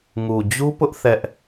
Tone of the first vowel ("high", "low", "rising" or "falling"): low